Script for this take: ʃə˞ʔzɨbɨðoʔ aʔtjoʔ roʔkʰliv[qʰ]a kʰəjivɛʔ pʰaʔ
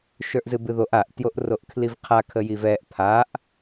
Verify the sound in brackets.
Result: correct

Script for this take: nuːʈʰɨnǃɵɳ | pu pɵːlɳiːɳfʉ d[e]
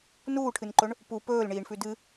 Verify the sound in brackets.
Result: incorrect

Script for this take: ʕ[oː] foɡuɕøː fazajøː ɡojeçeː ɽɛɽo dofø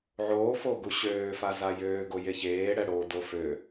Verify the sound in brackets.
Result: correct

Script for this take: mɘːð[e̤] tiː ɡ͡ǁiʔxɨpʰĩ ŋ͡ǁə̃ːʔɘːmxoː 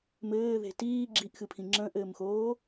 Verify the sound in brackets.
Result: correct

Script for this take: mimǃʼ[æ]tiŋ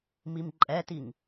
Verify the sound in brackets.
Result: incorrect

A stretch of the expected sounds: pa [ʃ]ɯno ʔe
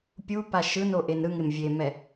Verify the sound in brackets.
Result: correct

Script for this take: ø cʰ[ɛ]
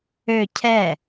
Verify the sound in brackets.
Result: correct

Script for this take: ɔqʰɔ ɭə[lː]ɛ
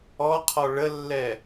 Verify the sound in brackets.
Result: correct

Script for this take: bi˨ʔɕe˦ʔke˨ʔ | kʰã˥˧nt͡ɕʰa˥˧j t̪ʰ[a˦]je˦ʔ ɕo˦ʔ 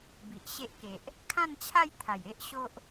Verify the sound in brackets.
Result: incorrect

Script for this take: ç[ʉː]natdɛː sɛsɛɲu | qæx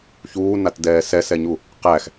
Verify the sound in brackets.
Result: incorrect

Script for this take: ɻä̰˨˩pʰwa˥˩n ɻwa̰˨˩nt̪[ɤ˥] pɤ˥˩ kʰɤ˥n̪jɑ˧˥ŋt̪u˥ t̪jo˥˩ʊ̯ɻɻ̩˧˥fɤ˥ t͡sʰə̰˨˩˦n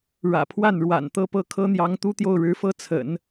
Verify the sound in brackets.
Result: incorrect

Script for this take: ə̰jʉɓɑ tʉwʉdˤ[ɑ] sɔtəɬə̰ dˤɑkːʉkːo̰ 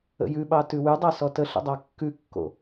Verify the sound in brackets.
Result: correct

